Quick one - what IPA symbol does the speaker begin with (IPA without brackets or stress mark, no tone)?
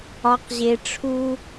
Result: ɒ